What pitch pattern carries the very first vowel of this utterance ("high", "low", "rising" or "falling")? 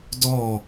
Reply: falling